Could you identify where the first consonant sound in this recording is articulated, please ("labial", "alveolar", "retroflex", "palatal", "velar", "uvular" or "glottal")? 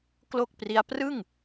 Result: velar